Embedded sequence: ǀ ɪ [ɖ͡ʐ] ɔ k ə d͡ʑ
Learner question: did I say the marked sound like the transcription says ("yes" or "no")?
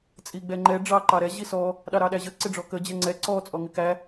yes